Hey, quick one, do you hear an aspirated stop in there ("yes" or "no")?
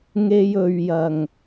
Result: no